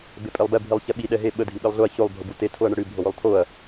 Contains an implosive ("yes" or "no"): yes